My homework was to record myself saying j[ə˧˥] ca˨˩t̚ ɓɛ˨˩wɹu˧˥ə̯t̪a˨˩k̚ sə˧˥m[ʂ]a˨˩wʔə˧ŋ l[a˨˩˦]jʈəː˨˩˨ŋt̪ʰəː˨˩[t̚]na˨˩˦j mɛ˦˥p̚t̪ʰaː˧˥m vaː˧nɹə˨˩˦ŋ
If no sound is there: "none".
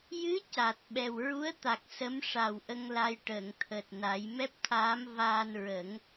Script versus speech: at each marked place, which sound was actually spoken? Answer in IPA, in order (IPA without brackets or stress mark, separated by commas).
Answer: ɨ˧˥, ʂ, a˧, t̚